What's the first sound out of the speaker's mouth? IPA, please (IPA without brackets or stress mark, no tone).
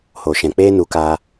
h